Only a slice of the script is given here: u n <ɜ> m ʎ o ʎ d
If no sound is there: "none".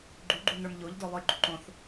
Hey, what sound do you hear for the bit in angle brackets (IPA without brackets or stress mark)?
ə˞